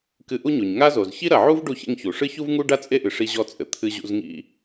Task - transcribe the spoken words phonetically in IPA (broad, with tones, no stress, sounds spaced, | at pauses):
k ɨ˧ ʔ u˥ ɲ o˩ ɲ ŋ a˥ z o˩ z ç i˥ ɾ ɐ˩ ʕ u˥ v ɖ u˧ ç ḛ˧ ŋ ç u˩ ʂ ɨ˥ ç u˥ v ŋ u˥ ɖ a˥ t͡sʼ e˥ ʔ ɨ˩ ʂ i˧ ʑ ɔ˧ t͡sʼ ɘ˩ t̪ʰ ɨ˧ ʑ ṵ˧ z ŋ ḭ˧